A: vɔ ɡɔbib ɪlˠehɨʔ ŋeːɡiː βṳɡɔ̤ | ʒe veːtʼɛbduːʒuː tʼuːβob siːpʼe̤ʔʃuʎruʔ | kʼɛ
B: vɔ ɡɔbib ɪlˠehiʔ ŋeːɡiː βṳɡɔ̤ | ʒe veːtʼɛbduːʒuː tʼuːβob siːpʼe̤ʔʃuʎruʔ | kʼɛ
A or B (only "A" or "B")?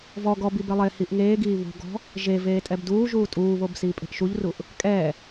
B